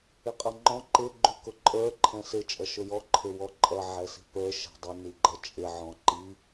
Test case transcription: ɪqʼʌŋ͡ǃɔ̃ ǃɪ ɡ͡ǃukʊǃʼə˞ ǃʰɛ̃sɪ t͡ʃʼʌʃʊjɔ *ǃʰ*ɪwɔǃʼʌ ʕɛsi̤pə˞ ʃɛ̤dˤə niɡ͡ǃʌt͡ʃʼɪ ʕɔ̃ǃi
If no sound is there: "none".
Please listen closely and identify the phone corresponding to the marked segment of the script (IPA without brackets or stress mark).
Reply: ǃʰ